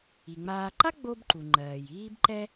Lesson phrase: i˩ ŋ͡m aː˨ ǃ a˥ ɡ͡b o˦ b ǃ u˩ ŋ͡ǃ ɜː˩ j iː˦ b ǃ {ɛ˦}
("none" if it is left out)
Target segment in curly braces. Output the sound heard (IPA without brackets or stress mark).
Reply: ɛ˦